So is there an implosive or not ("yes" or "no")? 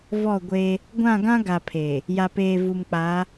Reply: no